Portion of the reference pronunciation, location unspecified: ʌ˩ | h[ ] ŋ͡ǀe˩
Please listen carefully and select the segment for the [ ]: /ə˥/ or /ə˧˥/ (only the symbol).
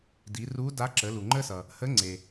ə˧˥